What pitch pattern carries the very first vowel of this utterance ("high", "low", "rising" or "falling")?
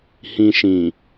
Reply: low